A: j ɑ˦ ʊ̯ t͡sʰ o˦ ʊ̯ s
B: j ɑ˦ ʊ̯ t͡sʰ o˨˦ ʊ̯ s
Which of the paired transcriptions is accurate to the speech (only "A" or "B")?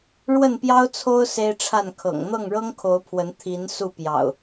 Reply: A